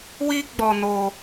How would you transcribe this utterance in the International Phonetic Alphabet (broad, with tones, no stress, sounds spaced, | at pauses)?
w i˦ ɡ͡b ɔ˧ n o˧